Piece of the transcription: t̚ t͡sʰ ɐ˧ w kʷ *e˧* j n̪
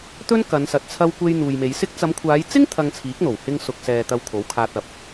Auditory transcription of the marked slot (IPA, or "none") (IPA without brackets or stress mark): e˧